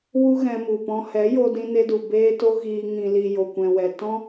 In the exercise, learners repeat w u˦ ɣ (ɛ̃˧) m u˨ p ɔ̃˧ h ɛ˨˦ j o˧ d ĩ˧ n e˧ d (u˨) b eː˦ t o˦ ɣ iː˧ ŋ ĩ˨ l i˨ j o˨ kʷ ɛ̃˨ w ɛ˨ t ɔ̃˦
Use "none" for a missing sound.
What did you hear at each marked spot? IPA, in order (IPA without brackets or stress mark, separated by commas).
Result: ɛ̃˧, u˨